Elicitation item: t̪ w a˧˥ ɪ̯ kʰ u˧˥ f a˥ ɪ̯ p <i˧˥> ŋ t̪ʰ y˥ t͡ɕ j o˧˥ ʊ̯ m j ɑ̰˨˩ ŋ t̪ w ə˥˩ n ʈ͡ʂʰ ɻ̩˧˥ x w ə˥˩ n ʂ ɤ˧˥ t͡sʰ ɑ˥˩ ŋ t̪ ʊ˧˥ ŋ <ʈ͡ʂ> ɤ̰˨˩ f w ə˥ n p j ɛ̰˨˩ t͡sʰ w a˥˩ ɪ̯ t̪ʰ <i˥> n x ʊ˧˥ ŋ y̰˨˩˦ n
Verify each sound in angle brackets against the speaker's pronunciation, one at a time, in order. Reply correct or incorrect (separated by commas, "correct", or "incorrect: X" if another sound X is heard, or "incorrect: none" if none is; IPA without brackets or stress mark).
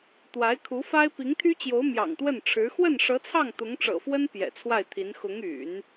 correct, correct, incorrect: i˧˥